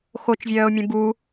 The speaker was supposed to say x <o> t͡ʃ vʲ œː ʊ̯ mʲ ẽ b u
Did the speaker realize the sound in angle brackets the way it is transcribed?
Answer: yes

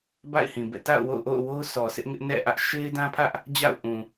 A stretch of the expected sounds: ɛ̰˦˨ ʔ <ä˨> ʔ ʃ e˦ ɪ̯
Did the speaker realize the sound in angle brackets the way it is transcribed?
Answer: no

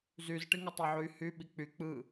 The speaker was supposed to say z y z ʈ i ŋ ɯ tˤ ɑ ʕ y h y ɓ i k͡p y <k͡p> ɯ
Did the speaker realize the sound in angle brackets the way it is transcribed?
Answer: yes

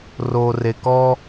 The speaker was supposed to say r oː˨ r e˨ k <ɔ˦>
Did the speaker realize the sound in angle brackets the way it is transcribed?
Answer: yes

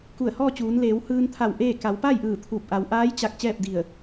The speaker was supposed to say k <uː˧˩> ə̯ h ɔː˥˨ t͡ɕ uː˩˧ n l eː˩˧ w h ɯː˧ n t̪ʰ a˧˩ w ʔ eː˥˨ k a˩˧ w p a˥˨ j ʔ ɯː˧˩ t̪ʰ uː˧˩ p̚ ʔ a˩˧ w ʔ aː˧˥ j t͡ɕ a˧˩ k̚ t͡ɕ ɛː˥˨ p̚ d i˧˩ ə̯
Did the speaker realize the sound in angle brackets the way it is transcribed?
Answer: no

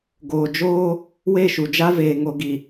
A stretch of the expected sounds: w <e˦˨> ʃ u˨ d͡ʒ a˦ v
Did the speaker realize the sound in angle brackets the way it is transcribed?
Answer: yes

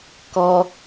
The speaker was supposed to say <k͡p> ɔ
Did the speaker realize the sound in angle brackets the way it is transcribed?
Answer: no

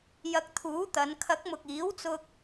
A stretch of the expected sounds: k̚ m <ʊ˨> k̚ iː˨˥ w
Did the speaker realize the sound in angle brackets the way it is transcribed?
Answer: yes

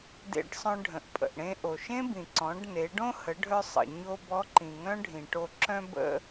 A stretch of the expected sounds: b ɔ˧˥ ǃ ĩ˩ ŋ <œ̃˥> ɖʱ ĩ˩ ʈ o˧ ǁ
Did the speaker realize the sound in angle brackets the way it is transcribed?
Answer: yes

